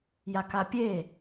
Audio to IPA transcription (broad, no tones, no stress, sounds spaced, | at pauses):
j a k a pʲ e